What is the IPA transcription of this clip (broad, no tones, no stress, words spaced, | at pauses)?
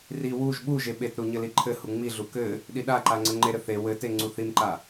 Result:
ri wuʒ ɓuʒe ɓetɾu ɲɘliǃʰɘhu ŋ͡miɮu kɘ | ɗiɗaǃa ŋ͡ǀɘŋ͡ǃeɾɘ θe wɘte ŋ͡ǀuθimǃa